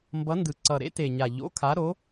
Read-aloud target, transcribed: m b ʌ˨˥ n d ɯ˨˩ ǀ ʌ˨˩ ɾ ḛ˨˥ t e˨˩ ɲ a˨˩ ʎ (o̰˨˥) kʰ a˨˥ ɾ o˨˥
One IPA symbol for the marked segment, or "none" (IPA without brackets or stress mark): o̰˨˥